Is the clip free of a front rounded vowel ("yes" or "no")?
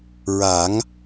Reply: yes